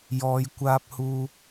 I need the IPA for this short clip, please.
j ɔː˨˧ j kʷ aː˧ p̚ h uː˧

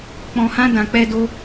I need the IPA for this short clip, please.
k͡p ɔ̃˧ h ã˦ d ã˧ k͡p ɛ˦ d o˦

